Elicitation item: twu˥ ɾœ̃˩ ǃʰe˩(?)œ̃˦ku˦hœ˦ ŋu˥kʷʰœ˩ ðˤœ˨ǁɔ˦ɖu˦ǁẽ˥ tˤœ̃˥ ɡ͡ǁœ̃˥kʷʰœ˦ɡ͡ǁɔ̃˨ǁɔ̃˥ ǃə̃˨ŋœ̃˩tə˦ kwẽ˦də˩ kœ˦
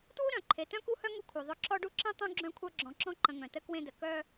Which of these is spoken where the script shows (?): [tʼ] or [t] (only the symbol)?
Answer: t